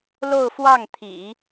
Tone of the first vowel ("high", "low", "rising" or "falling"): falling